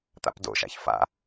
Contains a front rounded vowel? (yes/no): no